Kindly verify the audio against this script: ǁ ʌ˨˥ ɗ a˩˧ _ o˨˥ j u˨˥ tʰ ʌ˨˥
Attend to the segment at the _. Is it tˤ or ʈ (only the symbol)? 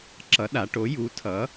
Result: ʈ